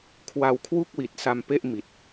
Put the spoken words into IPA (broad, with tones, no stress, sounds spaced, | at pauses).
kʰ w a˧ w kʰ w u˥˩ k̚ w i˨˩ t̚ s a˧ m p e˥˩ ʔ m i˨˩ t̚